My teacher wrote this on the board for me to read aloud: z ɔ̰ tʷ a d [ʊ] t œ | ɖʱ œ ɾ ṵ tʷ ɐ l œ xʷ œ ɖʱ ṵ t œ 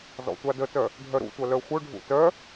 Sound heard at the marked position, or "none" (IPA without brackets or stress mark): ə